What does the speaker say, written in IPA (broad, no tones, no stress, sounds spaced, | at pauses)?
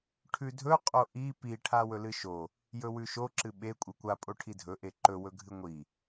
ʈʰ ʉ dʱ ɵ qʼ o ʔ i p i ʈʰ a w ɵ l ɨ ʃ o | j ɵ w ʉ ʃ o ǁ ɨ ɓ e kʷʼ ɨ kʷ a pʼ o ʈʰ i dʱ ɵ ʔ e ǃ ɵ w ɵ ɡʱ ɨ ŋʷ i